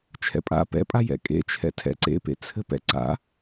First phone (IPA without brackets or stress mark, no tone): t͡ʃʰ